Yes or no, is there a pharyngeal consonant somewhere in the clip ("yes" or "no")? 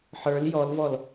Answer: yes